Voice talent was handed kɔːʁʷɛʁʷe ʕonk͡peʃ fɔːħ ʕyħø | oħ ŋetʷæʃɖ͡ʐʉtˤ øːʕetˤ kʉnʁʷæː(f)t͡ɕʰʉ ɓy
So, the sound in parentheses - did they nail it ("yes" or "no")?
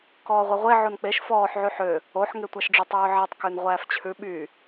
yes